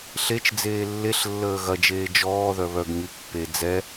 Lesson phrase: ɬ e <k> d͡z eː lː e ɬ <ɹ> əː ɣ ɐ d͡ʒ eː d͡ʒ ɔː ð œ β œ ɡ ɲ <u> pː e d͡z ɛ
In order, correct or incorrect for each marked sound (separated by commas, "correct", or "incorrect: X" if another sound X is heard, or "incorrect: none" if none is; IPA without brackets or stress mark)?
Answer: incorrect: t͡ʃ, incorrect: lː, incorrect: y